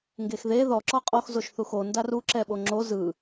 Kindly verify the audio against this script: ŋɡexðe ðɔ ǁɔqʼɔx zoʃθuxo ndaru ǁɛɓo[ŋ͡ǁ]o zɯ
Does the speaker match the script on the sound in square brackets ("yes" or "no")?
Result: yes